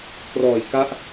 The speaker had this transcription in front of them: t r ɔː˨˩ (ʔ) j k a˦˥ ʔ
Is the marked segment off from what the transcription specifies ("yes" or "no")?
yes